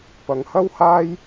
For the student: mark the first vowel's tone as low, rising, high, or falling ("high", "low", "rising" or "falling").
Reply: low